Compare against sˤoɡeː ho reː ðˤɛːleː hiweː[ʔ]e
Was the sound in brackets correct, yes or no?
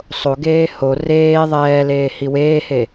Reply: no